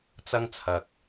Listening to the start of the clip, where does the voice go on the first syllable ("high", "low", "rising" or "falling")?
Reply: high